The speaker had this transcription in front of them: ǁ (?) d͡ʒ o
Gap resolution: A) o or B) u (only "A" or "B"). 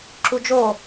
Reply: B